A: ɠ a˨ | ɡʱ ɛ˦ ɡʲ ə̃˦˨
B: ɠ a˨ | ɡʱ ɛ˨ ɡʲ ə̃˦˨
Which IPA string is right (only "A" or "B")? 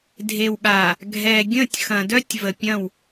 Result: B